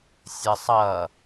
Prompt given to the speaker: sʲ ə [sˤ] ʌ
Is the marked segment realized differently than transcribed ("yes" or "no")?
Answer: no